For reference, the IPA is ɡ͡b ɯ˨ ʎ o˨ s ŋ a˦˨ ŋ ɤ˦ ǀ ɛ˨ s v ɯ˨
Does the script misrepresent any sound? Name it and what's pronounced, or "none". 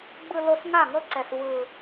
ʎ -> l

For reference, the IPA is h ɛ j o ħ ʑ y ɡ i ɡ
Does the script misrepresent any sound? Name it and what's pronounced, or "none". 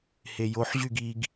ɛ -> e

